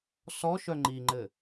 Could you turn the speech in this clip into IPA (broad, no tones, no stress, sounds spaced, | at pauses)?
s ɔ ʃ œ ŋ͡ǃ i ŋ͡ǃ ɘ